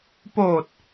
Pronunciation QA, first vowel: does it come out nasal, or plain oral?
oral